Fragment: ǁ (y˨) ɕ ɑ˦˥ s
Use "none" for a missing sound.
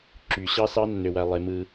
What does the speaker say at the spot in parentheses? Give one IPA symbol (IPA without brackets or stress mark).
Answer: y˨